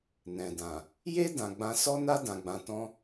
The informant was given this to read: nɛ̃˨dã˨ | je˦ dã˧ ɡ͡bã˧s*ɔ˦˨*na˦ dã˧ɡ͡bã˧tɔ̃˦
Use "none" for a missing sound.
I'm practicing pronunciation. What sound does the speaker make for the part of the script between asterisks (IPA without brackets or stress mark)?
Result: ɔ˦